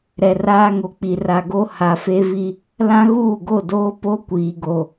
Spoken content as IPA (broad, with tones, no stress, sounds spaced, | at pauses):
ɾ ɛ˨ r aː˦ ŋ o˨ k͡p i˨ r a˨ ɡ o˦ h a˨ f e˦ v i˦ | l ã˦ ɣ uː˦˨ ɡ o˦˨ d oː˦ p o˦ kʷ iː˨ ɡ o˨